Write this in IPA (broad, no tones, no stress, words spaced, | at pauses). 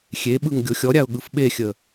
xʲeɓɯŋ ɡʲoxʲɔɾʲaʊ̯ ɠɯfɓexʲə